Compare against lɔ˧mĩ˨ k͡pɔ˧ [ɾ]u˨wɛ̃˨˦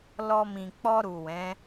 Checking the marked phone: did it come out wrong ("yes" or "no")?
no